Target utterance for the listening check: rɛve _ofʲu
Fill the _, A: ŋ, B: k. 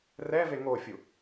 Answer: A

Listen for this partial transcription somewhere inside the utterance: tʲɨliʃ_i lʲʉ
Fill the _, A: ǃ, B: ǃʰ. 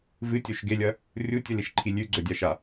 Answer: B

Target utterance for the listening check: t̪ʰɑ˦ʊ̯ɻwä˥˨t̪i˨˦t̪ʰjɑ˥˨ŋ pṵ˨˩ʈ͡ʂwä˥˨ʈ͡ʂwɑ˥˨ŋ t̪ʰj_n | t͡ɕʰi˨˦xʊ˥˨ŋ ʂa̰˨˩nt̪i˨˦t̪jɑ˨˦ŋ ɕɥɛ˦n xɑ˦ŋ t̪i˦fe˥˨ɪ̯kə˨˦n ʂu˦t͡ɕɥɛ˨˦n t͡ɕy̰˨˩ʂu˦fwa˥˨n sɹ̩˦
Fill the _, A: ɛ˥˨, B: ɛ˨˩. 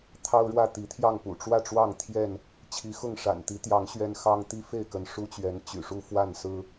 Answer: A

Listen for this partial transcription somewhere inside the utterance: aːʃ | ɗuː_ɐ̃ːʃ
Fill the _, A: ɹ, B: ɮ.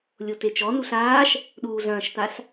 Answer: B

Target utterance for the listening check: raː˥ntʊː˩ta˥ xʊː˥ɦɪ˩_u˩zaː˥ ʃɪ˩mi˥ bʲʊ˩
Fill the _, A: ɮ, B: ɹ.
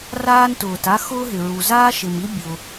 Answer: B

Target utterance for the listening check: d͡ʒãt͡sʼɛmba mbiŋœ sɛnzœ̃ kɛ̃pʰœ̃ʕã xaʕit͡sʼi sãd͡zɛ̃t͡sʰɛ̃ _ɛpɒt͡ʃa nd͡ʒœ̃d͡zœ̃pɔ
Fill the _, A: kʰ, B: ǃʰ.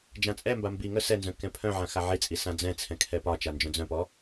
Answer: A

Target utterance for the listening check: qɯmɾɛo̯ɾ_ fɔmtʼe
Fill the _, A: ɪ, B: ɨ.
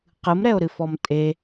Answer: B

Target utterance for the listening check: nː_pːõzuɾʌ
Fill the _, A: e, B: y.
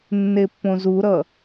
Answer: A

